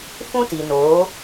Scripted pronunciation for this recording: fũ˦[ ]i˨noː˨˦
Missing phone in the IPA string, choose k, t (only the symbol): t